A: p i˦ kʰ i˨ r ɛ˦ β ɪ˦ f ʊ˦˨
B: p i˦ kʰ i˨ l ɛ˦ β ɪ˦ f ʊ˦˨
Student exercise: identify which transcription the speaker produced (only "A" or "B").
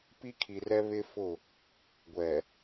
A